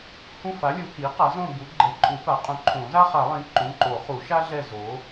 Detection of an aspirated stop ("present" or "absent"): present